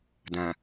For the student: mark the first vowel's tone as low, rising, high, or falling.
low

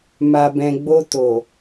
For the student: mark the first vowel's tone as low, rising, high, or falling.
low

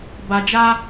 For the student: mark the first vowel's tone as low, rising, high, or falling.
low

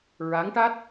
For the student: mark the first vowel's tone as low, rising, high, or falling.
rising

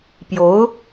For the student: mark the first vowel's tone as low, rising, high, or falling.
rising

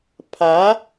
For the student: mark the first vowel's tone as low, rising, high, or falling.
rising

